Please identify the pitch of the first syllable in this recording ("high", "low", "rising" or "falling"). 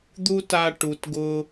high